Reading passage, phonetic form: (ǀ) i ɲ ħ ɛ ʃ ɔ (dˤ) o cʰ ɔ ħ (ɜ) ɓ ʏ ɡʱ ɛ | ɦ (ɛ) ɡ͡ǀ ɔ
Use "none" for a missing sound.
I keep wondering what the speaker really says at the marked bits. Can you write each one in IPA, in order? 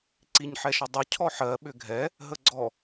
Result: ǀ, dˤ, ɜ, ə

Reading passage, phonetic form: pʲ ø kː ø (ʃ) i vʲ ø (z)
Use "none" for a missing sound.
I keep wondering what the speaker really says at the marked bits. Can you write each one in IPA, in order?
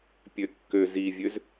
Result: z, z

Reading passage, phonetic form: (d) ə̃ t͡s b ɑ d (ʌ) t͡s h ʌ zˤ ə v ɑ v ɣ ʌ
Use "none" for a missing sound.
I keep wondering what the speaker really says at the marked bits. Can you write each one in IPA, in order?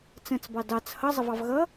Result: t͡s, ɑ

